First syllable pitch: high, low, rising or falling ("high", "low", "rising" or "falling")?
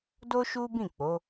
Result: high